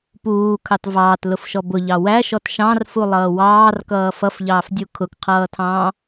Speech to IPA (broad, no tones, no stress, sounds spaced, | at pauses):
p uː kʰ ɑ t v ɑː t l ʊ f ʃ ɔ b ʊ ʎ ɑ w æ ʃ ɔ t ʃ ɑ̃ r f u lˠ ʌː w ɑː r k ʌː f ʌ f ʎ ɑː f dʲ u kʰ ʊ k qʰ ʌː tʰ ɑ̃ː